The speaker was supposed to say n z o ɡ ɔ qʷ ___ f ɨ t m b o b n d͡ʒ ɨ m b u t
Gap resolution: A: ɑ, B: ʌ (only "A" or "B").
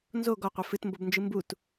B